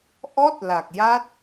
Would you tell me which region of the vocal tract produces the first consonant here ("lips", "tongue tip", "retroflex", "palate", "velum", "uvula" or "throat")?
throat